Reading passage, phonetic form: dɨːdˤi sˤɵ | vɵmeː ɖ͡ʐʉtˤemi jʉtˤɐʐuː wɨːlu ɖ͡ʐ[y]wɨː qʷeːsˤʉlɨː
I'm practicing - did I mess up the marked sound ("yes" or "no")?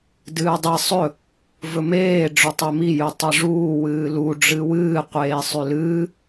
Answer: yes